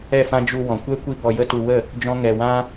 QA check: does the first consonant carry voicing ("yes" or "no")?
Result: no